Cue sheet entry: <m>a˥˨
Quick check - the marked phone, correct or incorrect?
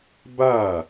incorrect